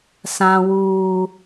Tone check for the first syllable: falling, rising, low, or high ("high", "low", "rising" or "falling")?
high